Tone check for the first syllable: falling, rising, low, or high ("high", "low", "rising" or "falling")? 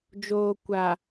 low